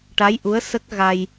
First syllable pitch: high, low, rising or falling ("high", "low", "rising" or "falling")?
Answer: rising